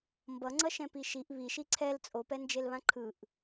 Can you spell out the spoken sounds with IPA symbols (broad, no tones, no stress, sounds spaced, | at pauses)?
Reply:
m b ʌ ŋ͡ǀ ʌ ʃ ɛ̃ p i ʃ i ʔ β i ʃ i ǀʰ ɛ l t͡sʼ o p ɛ n d͡ʒ e l β ã ǃʰ ɯ ʔ